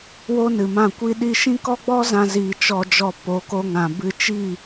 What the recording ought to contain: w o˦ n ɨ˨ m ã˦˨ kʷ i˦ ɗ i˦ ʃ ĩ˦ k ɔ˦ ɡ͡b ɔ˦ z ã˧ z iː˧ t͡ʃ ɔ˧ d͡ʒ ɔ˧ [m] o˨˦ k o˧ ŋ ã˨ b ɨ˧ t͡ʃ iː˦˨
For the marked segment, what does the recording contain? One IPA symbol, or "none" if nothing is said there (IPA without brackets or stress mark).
p